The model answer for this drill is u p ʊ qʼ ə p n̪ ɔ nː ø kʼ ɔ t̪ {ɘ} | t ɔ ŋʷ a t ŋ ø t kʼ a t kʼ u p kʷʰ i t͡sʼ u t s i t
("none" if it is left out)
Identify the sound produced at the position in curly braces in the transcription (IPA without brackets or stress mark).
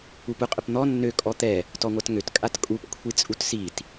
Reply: ɛ